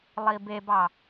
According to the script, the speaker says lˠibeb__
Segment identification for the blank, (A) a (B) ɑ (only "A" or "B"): B